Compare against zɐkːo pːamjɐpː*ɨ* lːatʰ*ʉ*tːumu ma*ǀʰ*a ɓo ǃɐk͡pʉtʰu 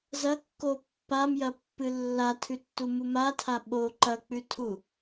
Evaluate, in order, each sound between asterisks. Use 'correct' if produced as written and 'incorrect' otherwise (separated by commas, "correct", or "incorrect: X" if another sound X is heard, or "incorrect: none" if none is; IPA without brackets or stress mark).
correct, correct, incorrect: tʰ